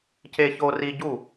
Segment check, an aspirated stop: absent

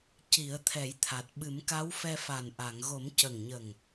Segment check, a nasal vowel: absent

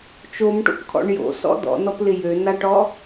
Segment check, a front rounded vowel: present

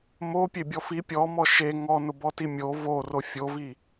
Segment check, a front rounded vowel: absent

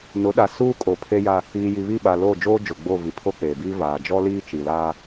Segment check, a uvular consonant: absent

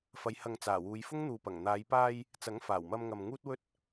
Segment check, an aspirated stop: absent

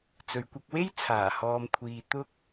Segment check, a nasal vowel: absent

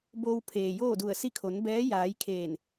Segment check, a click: absent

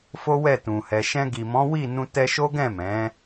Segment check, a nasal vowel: present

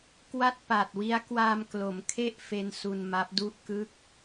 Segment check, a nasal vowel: absent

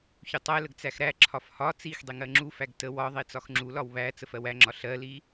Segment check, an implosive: absent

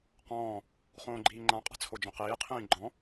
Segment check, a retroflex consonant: absent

